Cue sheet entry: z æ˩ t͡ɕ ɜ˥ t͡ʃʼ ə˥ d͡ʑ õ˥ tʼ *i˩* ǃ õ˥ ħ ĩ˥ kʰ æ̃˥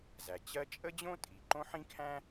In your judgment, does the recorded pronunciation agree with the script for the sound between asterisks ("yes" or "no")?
yes